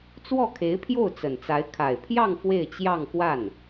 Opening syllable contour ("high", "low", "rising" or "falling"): falling